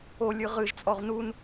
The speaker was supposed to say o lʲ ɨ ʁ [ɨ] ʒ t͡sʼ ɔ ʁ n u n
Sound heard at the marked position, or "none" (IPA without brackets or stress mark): ɨ